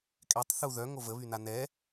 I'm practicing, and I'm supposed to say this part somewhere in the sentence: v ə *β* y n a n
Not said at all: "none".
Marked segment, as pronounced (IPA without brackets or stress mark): β